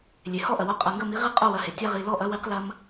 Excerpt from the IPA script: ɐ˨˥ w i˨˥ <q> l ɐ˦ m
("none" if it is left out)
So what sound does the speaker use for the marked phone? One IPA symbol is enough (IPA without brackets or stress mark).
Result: q